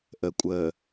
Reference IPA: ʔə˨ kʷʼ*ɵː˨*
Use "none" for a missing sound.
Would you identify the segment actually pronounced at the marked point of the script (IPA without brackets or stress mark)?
əː˨